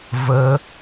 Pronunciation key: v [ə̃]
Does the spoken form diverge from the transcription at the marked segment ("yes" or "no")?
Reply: yes